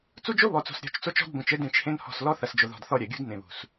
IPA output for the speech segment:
t͡su˦d͡ʒo˦ βɔ˨t͡so̤˨s ɾʲɔ̤˨˦t͡ʃt͡so˦t͡ʃɔ̤˦d bõ˨t͡ʃɘ˦ dẽ˦˨t͡ʃhẽ˦nhɔ̤˦˨s lɔ˦θɐ˨sd͡ʒo˨ðɔ̤˨d θɔ˦ɾʲɐ˨ɡʲṳ˦d nẽ˨βṳ˨s

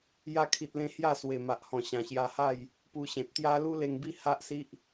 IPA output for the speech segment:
ja˧kʰi˨t̚lẽ˧ hja˥˧swe˨˩ma˨ʔhɔ̃˨˩ ɕã˨˩ɕja˧ha˥˧j | pu˧ɕẽ˨t̚t̪ja˦ lu˦le˧ŋbi˥˧ ha˦ʔsi˦ʔ

